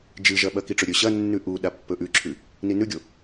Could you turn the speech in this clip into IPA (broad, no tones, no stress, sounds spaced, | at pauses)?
d͡ʒ ɨ ʒ ɐ ɓ ɐ k i ʈ͡ʂ ɵ ɾʲ ɵ ɕ ɐ nː ʉ ʔ u ɗ a pː ɵ ʔ ʉ ǁʰ ʉ | n i n ʉ ɡʲ o